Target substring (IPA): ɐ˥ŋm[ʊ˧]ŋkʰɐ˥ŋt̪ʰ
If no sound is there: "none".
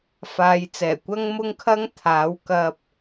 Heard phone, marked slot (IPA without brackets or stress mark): ʊ˥